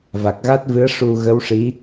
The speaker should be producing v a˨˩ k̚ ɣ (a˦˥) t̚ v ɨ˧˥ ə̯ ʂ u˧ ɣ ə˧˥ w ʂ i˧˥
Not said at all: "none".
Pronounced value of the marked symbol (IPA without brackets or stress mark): a˦˥